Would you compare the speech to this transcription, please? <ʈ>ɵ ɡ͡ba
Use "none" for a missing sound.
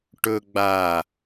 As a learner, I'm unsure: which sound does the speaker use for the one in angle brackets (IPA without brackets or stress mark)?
ʈ